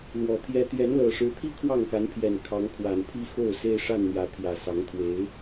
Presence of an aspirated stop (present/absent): present